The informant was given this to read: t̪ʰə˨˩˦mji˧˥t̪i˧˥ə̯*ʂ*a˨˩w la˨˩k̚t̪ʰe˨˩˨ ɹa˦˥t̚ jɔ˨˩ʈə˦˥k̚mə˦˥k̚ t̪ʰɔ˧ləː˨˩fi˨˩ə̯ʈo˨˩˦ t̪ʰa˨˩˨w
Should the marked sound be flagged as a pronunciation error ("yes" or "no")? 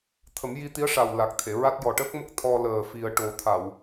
no